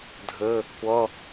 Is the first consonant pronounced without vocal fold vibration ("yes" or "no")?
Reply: no